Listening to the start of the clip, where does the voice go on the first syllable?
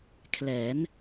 rising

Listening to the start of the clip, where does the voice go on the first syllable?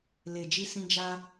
low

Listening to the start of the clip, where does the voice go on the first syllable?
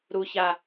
high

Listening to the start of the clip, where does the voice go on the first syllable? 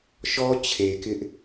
high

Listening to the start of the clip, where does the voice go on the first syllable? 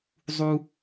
high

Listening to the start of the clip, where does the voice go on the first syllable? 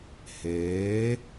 rising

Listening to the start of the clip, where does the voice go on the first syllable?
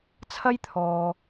high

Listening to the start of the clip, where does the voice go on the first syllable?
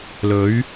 rising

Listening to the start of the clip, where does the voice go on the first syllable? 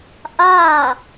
falling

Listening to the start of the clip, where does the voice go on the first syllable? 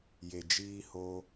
low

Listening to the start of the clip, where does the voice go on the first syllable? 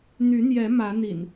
rising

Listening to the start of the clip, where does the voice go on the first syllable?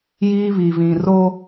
high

